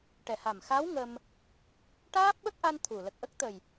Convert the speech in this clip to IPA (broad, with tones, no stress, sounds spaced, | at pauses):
ʈ ɛ˨˩ h a˨˩ m x a˧˥ w ŋ ə˧ m | ʈ aː˦˥ p̚ ɓ ə˦˥ k̚ ʔ a˧ n t̪ʰ u˨˩ l ə˨˩ k̚ ʔ ə˦˥ k̚ t̪ ə˨˩ j